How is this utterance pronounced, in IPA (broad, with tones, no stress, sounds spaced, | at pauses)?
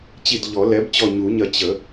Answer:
t͡ɕ i˧˩ d ʎ ɔ˨˩˦ l ɛ˩˥ b t͡ɕ ɔ˧˩ ɲ u˨˩˦ ɲ ɐ˧˩ t͡ɕ ə˨˩˦